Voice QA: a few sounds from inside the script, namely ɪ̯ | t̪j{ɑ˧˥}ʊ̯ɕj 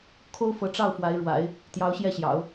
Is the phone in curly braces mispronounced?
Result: no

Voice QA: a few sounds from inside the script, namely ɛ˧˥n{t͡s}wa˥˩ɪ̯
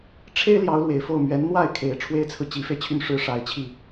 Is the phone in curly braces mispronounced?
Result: yes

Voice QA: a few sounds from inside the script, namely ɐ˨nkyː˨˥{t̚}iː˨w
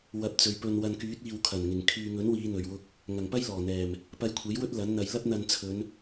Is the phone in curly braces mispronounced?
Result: no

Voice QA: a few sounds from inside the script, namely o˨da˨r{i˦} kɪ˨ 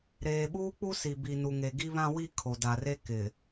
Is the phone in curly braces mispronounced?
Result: yes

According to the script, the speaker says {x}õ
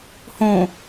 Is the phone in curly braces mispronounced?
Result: yes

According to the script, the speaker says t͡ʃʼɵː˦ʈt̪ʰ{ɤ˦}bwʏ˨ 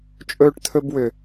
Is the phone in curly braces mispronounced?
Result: yes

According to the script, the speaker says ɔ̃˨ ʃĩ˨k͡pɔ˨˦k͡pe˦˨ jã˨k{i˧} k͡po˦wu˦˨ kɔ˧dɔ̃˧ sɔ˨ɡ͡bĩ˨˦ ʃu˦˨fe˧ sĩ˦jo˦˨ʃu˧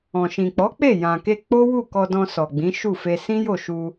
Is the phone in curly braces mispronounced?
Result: yes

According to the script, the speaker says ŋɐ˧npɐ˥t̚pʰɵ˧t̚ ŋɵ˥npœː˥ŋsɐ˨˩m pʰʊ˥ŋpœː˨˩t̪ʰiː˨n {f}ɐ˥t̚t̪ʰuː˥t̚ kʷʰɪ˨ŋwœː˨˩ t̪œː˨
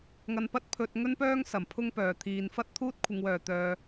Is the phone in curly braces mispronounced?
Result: no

